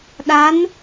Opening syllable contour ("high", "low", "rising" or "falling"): rising